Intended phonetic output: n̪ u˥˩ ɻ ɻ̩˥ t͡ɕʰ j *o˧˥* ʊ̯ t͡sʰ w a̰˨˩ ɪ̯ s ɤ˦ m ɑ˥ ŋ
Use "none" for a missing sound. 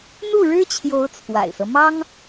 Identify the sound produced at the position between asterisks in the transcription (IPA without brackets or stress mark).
o˧˥